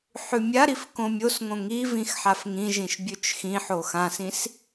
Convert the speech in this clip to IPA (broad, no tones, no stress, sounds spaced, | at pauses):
ħ ʉ mʲ a ɾ i f k õ mʲ o s ŋ õ ŋ i v ĩ x ħ a f ŋ ĩ ʒ ĩ ʃ bʲ ʉ t͡ʃ x ĩ ħ o x ã s ĩ s